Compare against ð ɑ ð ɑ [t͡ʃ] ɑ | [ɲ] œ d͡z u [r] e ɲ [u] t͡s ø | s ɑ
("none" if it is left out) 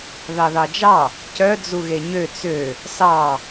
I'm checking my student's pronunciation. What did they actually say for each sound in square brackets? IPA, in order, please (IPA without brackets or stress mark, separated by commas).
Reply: d͡ʒ, c, ɣ, ø